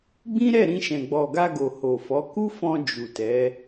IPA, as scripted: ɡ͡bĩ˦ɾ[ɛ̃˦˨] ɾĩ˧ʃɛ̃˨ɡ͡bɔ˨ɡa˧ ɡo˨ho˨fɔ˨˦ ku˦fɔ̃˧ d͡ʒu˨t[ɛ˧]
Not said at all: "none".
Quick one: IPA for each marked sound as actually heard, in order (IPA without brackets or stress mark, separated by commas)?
ɛ˦˨, ɛ˨˦